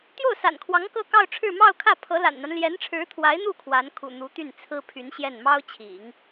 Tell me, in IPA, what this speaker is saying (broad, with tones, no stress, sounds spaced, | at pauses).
t̪ j o˥˩ ʊ̯ s a̰˨˩ n kʰ w ɑ˧˥ ŋ k ɤ˥˧ k ɑ˥˧ ʊ̯ ʈ͡ʂʰ ɻ̩˥˧ m ɑ˥˧ ʊ̯ kʰ ä˥˩ pʰ ɤ˧˥ l a̰˨˩ n n̪ a˦ n l j ɛ˧˥ n ʈ͡ʂʰ ɻ̩˧˥ t̪ʰ w a˧˥ ɪ̯ n̪ u˥˩ kʰ w a˧˥ n kʰ ṵ˨˩ n̪ u˧˥ t̪ y˥˩ n t͡sʰ ɹ̩˥ pʰ y˧˥ n ɕ j ɛ˥˩ n m ɑ˥ ʊ̯ t͡ɕʰ ḭ˨˩˦ ŋ